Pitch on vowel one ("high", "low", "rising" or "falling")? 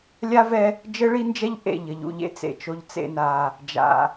high